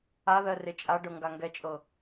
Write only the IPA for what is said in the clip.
aðɜ ret͡ʃʼaɖɤ ŋɡaŋɡɛt͡ʃʼɤ

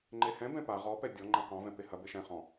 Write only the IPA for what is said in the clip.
ŋ͡ǃehɛ̃ bɛ̃pa ʁɔpɛ dʲɔ ŋ͡ǃɛ̃qɔ̃vɛ̃ pehɐ beʃɛ̃χɔ̃

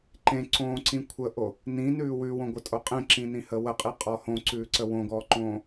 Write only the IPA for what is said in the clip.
ǃẽǀõːǀĩ kʷʰəʔo | nĩnʉː wʉwõɡʷətʼo qʼẽǁĩnĩhə wəqʼiqʼɔ hõǀʉːǀə wõɡɔːǃõː

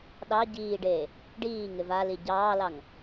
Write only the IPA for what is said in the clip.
ɗɑ ɟiːɖeː | ɖiː ŋɪvali ɟɑːlɑŋ

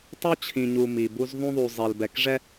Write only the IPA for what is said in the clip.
tˤo˦ t͡ɕʰĩ˨ɲu˨ mi˨bu˦z ðˤũ˦ðˤu˨ zˤe˨lbɛ˨kʐɛ˦

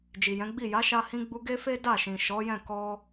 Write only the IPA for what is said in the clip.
d͡ʒi˨jɛ̃˨˦ɡ͡bi˦˨ ja˨˦ʃa˧hĩ˧ɡ͡bu˧ ɡe˦fe˦ da˦˨ʃĩ˨ ʃɔ˨˦jɛ̃˦˨ kɔ˧

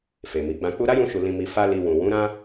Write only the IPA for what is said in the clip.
fe˨mi˨ɡ͡bã˧ k͡pu˧ɾa˦jũ˧ʃu˨ lĩ˧mi˧ fa˦li˧wũ˨ wũ˨˦ɾã˦

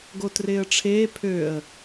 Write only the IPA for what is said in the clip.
ɡotrɪːə̯ʈ͡ʂʰeː pʰøə̯

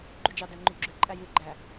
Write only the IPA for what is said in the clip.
ɡ͡ǃyd͡ʒɑdæ ŋ͡ǃʉɡ͡ǁøǃʼæ jʉɡ͡ǃæ

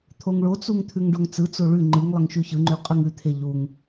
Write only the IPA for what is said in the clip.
t̪ʰoŋɭot͡suŋ t̪ʰʉŋɖoŋt͡sɯ t͡soɭʉ ŋ͡ǃɯŋ lˠəŋʃʉçɯŋ͡ǃʉ qʼɯŋʉt̪ʰe ʎuŋ

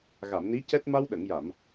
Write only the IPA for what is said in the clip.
ɣa˨˩˨mni˧˥cɛ˦˥t̚ ma˧wɗə˨˩˨ŋja˨˩˨m

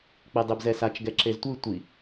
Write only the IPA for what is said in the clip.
k͡pidˤibzɛsat͡ʃ ɡɛǁeztʷɯ tʷi

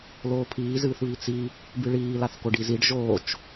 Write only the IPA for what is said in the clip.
loːpʰiːzɨːθ βit͡si | bɨɭiːlaθkoɖ iziɖ ʒoːt͡ʃ

